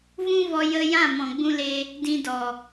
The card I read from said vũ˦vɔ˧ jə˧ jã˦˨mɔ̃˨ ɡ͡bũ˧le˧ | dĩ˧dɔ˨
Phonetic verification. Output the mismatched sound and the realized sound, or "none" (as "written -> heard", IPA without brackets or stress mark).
none